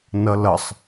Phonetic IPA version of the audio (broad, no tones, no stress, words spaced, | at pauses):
nʌlʌsˤ